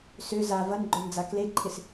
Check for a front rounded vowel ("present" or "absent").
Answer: present